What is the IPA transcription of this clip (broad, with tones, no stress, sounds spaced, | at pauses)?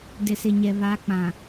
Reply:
d ɪ˨ s ɪ˨ ɲ ɛ˨ β a˨˦ k͡p ã˨